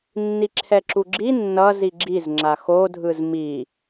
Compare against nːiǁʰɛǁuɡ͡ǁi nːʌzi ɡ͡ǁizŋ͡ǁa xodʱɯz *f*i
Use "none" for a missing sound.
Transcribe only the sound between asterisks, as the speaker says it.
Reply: m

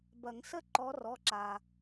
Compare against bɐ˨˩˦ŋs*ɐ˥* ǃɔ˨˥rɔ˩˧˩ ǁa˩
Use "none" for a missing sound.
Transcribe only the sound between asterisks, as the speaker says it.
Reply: ə˥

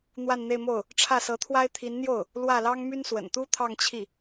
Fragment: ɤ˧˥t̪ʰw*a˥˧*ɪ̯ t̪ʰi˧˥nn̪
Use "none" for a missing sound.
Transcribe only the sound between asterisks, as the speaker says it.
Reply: a˥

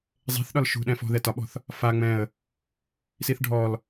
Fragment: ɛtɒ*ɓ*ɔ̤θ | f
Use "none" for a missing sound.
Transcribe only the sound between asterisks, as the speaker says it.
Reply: ɓ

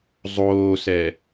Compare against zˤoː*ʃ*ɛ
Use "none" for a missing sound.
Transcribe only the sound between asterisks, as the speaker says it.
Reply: s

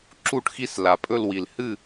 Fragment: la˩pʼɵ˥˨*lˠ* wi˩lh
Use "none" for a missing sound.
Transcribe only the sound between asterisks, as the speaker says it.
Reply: l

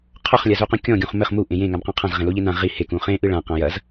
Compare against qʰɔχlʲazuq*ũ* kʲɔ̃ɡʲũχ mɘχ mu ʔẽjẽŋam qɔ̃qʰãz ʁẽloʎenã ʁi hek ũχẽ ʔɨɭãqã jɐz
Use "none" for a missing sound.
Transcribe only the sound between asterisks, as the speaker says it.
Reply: ũ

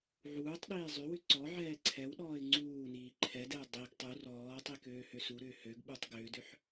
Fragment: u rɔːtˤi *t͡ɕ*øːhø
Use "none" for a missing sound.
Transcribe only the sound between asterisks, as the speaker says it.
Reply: k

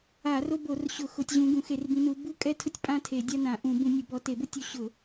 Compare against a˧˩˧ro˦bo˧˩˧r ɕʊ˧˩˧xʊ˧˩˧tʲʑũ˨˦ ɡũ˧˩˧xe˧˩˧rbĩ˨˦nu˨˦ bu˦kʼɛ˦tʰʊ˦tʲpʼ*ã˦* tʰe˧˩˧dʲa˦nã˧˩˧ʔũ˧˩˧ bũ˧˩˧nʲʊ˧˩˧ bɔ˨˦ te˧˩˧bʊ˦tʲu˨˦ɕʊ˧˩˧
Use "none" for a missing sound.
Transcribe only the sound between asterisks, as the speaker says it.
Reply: ã˦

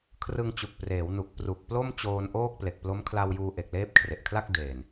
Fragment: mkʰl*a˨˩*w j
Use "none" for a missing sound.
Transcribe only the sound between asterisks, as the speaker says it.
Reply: a˧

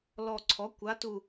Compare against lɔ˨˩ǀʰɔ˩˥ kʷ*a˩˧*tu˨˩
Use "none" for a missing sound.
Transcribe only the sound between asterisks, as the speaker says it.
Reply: a˩˧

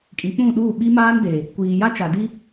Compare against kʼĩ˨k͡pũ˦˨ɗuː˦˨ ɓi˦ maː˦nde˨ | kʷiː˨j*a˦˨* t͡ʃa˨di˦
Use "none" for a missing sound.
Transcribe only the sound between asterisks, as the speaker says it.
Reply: a˦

